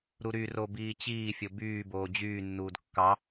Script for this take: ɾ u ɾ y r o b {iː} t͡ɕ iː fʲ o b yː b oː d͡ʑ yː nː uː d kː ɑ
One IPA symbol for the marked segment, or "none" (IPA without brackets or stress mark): iː